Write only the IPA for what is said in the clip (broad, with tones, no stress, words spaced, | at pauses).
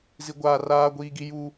zi˦ɡʷaː˦ raː˦ ɡʷiː˦ɡi˦ ju˦